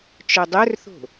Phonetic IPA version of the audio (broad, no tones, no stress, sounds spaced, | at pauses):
t͡ʃ œ dˤ œ r θ o̤